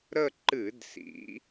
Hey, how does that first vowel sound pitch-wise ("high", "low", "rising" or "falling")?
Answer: falling